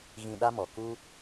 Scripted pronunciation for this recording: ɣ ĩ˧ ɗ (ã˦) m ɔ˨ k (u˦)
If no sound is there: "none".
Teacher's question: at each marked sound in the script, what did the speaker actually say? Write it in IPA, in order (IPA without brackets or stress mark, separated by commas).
a˦, u˦